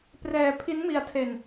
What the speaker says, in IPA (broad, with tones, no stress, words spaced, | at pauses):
prɛː˧pʰi˦˥nmi˧a̯tʰe˧n